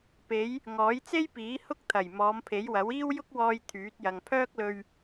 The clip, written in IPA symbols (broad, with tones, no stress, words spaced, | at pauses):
pe˨˧j | ŋɔː˨˥jt͡se˥jpiː˨˥ hʊ˥k̚t̪ʰɐ˨˩j mɔː˨˧mpʰe˨˥jwɐ˨˥wiː˥w jʊ˥k̚wɔː˧j t̪ʰyː˨˥t̚jɐ˨ŋ pʰœː˥k̚lɵ˧ɥ